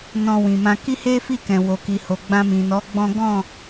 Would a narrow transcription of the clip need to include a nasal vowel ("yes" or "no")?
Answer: yes